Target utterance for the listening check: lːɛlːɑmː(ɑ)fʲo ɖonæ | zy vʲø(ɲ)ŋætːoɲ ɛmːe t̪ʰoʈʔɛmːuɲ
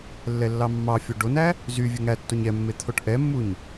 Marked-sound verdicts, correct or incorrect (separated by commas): correct, incorrect